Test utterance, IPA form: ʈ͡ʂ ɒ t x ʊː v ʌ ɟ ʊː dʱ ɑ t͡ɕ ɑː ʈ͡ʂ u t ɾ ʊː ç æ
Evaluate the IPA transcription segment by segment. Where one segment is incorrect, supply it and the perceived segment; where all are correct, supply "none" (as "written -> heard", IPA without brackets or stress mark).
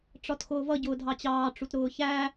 none